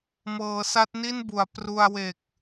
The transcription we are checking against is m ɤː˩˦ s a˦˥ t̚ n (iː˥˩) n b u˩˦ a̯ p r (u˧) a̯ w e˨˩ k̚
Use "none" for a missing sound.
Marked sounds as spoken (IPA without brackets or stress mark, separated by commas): i˥˩, u˧